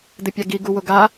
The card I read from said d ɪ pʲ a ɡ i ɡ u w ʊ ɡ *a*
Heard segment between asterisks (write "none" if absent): a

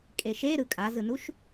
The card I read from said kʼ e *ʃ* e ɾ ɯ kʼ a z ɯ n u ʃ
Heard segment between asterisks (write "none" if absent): ʃ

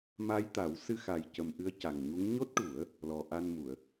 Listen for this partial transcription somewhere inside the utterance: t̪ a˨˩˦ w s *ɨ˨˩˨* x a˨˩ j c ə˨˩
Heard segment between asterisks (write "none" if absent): ɨ˧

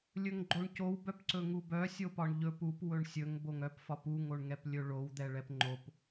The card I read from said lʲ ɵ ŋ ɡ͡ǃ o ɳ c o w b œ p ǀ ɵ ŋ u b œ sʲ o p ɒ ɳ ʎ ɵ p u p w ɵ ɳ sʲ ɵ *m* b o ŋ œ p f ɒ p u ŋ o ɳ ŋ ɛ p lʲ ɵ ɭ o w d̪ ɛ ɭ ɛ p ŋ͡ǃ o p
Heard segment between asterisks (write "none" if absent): ŋ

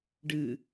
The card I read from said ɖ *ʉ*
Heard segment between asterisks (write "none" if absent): ɨ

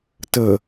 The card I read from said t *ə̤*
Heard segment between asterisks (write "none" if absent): ə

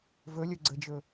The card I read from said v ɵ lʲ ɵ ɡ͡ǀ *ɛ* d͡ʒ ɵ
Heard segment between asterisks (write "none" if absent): ə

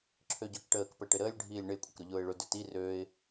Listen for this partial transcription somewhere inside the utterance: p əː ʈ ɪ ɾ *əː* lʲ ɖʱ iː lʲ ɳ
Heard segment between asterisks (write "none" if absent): əː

